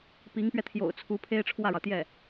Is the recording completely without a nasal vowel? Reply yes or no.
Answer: yes